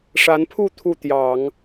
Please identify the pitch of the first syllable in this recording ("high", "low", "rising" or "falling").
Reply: rising